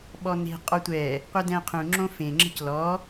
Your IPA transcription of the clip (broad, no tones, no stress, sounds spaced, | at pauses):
ɓ ɔ n e̤ qʼ ɔ tʷ ɛ | qʷ ɐ d ɛ̃ qʰ ũ ŋ͡ǁ õ f ẽ ŋ͡ǁ ə̤ c l ɔ